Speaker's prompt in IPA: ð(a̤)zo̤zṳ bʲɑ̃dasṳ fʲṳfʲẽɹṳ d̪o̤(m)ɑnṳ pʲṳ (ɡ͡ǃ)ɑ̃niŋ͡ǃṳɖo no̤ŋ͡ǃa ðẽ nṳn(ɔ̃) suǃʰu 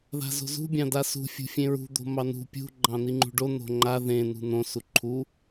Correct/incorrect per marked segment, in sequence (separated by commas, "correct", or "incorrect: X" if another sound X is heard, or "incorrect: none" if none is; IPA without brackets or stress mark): correct, correct, correct, incorrect: õ